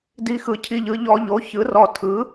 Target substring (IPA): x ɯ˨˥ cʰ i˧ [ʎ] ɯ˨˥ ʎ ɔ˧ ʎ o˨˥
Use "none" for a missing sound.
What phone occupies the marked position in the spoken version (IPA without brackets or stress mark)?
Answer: ʎ